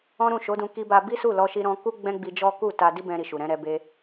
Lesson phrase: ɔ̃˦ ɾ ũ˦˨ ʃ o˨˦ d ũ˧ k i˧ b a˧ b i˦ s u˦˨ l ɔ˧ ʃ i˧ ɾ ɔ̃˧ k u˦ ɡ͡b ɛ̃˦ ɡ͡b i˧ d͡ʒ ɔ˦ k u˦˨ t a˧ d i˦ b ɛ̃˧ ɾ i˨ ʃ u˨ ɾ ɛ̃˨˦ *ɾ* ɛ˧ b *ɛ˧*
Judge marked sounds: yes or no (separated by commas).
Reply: yes, no